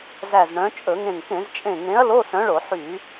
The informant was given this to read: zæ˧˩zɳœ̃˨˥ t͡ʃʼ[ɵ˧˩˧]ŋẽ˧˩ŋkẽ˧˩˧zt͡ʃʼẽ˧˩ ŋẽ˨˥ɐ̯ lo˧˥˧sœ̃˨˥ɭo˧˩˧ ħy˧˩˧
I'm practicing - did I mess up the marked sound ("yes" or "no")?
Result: no